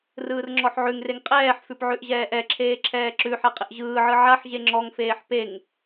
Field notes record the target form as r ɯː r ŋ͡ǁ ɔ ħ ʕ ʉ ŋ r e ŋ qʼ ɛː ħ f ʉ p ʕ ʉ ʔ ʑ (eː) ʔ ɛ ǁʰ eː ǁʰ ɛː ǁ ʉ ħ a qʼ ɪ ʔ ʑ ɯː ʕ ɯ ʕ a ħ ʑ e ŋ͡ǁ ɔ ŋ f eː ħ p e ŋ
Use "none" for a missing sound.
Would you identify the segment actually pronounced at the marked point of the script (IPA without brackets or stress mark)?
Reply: ɛː